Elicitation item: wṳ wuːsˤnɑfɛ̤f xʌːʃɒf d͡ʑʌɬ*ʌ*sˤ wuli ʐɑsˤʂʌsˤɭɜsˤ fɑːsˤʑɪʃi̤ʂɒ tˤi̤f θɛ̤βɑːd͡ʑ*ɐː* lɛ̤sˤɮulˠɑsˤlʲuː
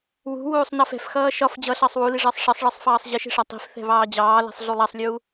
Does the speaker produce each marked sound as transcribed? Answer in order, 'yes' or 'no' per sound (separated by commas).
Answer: no, no